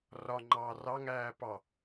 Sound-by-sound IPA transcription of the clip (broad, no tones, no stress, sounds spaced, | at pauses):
r ɒ ŋ͡ǃ ɑː r ɑ ŋ æː p ɑ